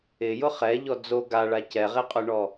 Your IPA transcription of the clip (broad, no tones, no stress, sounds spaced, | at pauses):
ɪ j ʊ χ ɛ ʎ ɔ d͡z o ɡ a ɭ a c ɛ ʁ e qʼ ʊ ɳ ɔ